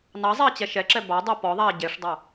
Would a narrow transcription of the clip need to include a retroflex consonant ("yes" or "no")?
yes